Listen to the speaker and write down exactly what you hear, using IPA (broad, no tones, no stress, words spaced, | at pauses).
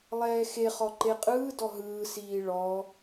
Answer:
lˠɛːxeχɔ ǃeqʼɯːdɔ ɦɯːsiː ɭɔ